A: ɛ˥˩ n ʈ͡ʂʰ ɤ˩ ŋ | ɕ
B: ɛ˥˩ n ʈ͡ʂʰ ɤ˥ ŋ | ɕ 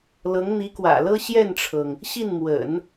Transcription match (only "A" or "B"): A